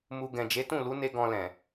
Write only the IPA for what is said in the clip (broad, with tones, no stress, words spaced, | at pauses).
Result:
mu˧ ɡɛ̃˨d͡ʒe˨˦tũ˦˨ lu˨˦ne˧ ɡɔ̃˧lɛ̃˨